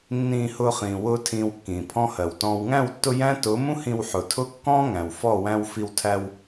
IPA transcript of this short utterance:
nː ĩː˧ h ʊː˧ χ ĩː˨ w ʊː˧ tʰ ĩː˧ w kː ĩː˨ pʰ ɔ̃˦ h ɜ˨ w t ɔ̃ː˨ w ŋ æ̃˦˨ w tː ʊ˧ j æ̃˦ t ʊː˨˦ m ũ˦ h ĩ˧ w ħ ʊ˨ tʰ ʊ˦ kː ɔ̃ː˦ ŋ æ̃˨ w f ɔ˦˨ w æ̃˧ w f i˧ w tʰ æ˧ w

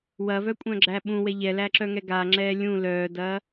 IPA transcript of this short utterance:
w ɐ v œ kʷʼ œ̃ ɡ͡ǁ æ ɓ ũ w ɛ ʎ ɛ l æ ǁ œ ŋ ɛ ɡ a ŋ͡ǁ ɛː lʲ ũ l œː d ɐː

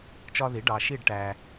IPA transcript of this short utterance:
t͡ʃ ɒ˦ ð i˩˥ ɖ ɑ˨ ʃ i˥˨ ɖ ʈ æ˨

